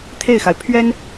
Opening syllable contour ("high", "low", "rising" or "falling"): falling